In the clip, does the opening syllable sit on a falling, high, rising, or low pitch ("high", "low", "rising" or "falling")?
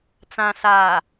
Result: low